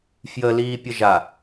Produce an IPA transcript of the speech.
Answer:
f j ə l iː pʲ ə ʒ a

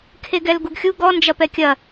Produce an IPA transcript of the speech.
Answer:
kʰ e ɡ ɛ l ɡ u ɡ xʲ u ɡ ɔ n d͡ʒ ɐ p ɛ kʲ ɐ

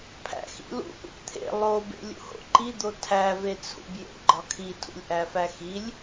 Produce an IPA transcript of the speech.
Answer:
pʰ æ̰ x ḭ l ṵ ʔ ṵ p t̪ʰ ḛ lˠ o b ḛ lʲ ṵ h o̰ ǃ i d̪ o tʰ æ v e t͡sʰ ṵ b j ḛ ɡ͡ǃ ɒ kʰ i tʰ ṵ lʲ ʔ æ f æ x i lʲ

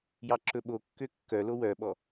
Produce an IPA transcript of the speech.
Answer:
j ɑ ǁ ɵ ɓ o kː ø kː œ l o w œ ɓ ɔ

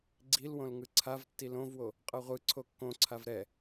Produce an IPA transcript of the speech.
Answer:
ɡ͡ǀ i l w õ l ŋ ɯ ǀʰ a v tː i l õ v w o | qʼ ʌ ʁʷ ɯ ǀʰ o kː õ ǀʰ a v ɾ ɛ

